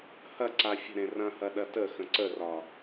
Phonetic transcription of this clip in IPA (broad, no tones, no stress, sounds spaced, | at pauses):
h ɐ ǀ a fʲ ə̤ ɾ ẽ r ɐ̃ h ɐ ɗ ɐ t ə x ə̃ ǀ ə r ɒ